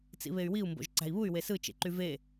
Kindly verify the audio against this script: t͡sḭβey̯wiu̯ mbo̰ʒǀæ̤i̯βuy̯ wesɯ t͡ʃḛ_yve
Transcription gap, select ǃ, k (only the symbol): ǃ